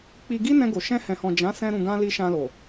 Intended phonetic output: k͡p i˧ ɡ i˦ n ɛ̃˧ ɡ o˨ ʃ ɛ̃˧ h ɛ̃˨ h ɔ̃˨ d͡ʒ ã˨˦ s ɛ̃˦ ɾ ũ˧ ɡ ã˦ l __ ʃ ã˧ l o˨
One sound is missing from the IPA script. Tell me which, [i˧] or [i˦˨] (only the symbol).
i˧